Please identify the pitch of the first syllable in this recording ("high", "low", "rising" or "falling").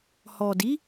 low